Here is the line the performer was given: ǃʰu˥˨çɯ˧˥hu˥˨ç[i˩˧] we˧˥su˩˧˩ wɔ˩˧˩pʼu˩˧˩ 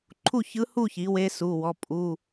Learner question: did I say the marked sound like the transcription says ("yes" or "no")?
yes